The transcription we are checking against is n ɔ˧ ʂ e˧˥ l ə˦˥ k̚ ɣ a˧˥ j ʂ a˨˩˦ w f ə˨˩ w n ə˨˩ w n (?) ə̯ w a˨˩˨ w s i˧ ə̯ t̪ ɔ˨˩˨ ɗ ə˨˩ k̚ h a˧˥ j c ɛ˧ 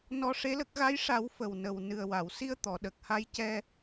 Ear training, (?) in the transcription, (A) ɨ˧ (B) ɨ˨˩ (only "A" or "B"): B